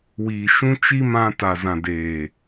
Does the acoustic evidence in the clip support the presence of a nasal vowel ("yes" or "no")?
yes